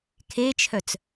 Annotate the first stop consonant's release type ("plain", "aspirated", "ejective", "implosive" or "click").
aspirated